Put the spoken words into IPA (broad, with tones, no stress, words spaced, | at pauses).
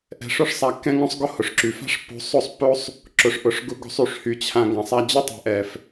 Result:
ʔɛ̤˧ʂʊ˦ʂsˤa˧ kːɛ̃˦ŋõ˦sˤɡʊ˦ hʊ˨ʂǁy˨fa̤˦ʂpːo̤˧ sˤo˦˨sˤpːo˦sˤ | ǁʊ˨ʂʔʊ˨ʂ ɡʊ˧ɡo̤˧sˤ y˨ʂhy˨t͡ɕʰã˨ ɡã˨sˤa˧d͡ʑʊ˦ tˤɛ̤˨ʔɛ˨f